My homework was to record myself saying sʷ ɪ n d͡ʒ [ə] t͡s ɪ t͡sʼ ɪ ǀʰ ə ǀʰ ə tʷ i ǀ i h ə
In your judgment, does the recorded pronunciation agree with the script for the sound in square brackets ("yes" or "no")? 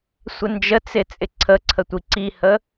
yes